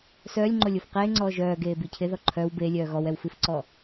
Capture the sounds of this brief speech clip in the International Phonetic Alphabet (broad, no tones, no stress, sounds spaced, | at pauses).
s œː lʲ ŋ͡ǃ o lʲ o f q eː ŋ͡ǀ ɔː ʒ œː ɡ eː b i cʰ ɪ ð ɔ ǃʰ œ w b e lʲ œː ɣ ɔ w ɛ w f i f ǀ ɔ